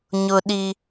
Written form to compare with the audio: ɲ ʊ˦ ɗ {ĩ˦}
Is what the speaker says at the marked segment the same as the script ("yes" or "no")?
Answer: no